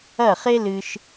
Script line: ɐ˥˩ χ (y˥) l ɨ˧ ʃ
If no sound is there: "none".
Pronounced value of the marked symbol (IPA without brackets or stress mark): e˥